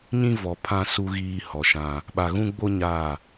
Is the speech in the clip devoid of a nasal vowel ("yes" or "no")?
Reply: no